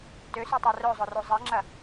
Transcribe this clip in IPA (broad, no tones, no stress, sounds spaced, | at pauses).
t ø s y tˤ a r œ zˤ ʊ r o zˤ ɛ ŋ͡ǁ ɐ